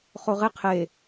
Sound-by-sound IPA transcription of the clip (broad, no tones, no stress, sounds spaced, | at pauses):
χ o ʁ e qʰ e